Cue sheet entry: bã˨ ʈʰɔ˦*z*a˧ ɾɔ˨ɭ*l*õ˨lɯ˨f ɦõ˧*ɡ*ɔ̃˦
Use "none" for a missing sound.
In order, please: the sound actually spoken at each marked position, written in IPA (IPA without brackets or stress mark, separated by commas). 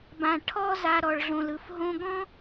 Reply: z, ɮ, ɡ